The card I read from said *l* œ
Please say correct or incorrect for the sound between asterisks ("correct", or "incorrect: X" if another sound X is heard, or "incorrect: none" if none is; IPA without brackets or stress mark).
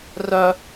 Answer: incorrect: r